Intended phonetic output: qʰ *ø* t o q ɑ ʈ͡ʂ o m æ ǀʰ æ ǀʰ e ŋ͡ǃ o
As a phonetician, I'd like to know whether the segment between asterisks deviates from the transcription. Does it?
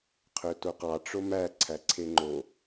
no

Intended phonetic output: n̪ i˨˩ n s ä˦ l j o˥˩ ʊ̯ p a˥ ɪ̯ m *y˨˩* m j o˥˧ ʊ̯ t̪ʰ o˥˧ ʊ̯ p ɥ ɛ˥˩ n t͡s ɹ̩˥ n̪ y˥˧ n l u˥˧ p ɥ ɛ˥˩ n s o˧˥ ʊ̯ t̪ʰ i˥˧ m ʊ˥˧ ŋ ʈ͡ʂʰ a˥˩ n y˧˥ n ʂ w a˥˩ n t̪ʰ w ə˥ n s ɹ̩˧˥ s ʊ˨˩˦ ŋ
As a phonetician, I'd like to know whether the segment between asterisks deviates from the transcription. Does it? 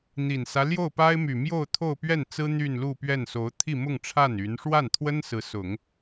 no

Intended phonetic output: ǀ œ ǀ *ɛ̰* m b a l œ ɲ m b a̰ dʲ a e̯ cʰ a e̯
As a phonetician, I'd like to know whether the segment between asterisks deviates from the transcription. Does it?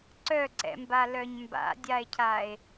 no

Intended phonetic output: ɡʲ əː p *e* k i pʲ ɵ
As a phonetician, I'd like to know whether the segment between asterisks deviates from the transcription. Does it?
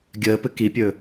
yes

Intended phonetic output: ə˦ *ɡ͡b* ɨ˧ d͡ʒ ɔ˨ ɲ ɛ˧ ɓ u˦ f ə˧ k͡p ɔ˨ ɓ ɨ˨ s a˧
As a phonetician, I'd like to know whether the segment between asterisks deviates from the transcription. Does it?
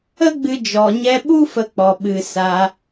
no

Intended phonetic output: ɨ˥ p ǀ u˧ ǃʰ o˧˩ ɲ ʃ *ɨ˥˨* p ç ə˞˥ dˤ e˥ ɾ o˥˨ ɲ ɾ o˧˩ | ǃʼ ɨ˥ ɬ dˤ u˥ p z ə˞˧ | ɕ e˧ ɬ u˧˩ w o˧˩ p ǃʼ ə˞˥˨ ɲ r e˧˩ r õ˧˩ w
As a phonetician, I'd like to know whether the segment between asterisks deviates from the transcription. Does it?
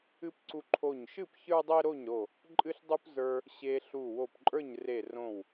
no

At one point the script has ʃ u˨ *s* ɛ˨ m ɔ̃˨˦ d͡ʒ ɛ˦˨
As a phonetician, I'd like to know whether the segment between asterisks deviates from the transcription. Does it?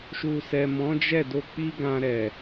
no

